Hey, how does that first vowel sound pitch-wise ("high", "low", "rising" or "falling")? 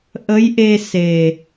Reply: rising